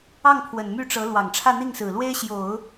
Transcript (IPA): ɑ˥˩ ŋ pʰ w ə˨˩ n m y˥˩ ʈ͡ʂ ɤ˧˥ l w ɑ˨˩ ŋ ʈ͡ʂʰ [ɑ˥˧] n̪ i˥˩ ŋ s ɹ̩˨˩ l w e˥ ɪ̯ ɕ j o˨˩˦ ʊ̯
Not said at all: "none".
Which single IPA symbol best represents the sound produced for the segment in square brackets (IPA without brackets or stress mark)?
ä˥˧